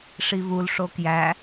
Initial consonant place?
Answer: retroflex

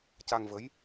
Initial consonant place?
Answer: palatal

